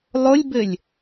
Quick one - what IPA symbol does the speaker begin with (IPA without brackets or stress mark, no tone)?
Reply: lˠ